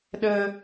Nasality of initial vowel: oral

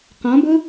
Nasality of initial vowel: nasal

